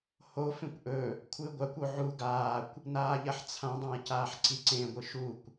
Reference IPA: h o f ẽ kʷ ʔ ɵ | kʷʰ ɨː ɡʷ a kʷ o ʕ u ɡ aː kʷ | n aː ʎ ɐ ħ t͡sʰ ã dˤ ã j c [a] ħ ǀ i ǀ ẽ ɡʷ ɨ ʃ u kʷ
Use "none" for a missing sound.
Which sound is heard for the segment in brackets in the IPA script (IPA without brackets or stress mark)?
aː